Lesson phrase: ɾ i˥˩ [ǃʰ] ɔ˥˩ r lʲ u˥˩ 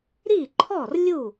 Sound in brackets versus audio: correct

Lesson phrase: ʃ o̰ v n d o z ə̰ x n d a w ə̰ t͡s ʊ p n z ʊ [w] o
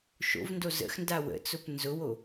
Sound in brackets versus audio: correct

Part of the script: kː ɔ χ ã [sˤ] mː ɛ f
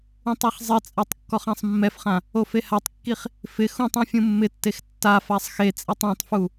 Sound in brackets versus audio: correct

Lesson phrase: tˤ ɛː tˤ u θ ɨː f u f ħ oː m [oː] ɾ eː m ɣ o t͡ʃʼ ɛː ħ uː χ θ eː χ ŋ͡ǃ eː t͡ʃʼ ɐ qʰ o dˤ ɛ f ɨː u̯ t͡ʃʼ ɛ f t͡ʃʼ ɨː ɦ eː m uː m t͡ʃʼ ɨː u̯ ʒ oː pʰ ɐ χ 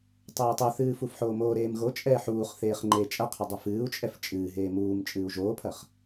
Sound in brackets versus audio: correct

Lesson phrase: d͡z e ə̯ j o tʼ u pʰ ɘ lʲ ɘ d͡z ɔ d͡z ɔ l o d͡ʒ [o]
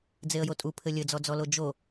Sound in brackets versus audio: correct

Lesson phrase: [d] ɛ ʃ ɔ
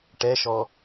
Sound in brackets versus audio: incorrect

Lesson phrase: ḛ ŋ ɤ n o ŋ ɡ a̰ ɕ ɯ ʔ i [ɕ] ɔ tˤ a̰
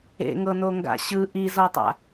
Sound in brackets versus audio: incorrect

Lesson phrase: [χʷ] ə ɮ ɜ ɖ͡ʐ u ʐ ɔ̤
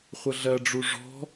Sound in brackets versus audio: correct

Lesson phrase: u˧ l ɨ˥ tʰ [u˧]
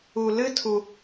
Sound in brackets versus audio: correct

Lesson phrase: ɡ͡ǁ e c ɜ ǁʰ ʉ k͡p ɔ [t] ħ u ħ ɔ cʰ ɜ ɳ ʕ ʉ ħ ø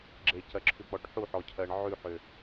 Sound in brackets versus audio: incorrect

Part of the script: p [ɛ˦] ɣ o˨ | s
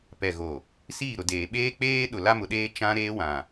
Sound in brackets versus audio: incorrect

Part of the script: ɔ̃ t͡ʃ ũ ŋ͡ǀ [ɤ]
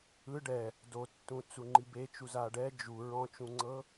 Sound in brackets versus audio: correct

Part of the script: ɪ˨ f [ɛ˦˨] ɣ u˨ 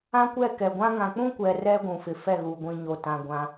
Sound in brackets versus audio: correct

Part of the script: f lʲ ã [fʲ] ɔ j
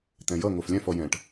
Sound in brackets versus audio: incorrect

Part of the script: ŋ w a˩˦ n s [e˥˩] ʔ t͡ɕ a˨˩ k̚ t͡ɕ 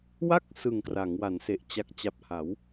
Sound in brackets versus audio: incorrect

